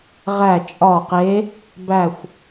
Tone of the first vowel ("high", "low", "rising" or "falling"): falling